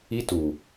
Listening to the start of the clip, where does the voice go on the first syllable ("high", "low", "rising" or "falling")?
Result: high